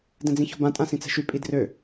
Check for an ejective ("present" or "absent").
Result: present